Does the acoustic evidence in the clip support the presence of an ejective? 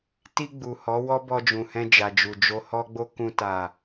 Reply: no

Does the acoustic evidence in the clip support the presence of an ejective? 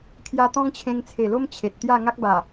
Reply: no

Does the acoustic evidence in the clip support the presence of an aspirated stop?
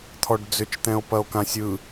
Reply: yes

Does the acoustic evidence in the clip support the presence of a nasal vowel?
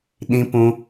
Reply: yes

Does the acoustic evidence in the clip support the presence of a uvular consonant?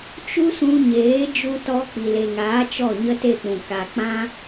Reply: no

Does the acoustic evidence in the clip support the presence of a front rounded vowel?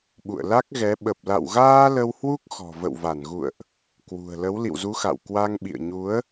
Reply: no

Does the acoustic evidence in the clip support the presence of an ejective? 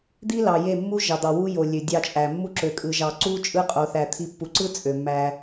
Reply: yes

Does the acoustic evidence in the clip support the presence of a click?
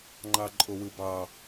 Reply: yes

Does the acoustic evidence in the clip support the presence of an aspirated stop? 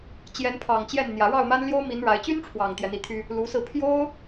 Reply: yes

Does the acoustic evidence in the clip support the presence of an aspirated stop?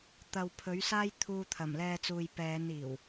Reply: yes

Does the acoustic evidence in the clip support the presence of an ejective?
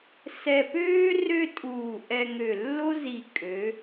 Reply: yes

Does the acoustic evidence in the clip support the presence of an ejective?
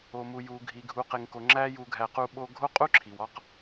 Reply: yes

